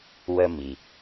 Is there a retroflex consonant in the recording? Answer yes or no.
no